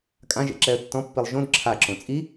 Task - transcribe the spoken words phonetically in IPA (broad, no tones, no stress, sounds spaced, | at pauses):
kʼ ã ʒ ḛ ǁ ɛ ə̯ tː ɔ̃ pː i lˠ ʒ õ d ǁʰ a ǁ õ t͡sʼ i